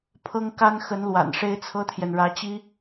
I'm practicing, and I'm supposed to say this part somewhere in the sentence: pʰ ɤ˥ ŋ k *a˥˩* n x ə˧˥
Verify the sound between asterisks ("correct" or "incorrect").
incorrect